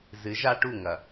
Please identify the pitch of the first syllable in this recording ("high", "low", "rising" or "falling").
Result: rising